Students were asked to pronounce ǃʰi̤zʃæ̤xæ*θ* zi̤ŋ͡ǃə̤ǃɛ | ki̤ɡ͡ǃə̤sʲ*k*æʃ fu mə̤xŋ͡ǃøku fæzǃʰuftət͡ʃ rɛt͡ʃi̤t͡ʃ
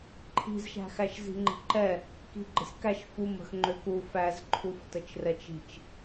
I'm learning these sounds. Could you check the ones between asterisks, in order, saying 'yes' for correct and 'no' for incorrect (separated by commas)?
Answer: no, yes